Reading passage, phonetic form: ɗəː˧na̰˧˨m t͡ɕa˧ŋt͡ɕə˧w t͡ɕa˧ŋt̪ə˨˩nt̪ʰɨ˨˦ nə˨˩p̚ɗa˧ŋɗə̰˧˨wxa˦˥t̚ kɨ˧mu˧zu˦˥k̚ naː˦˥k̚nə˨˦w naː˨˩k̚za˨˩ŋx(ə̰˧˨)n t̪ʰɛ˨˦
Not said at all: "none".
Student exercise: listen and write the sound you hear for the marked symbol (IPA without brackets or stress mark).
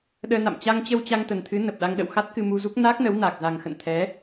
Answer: ə̰˧˨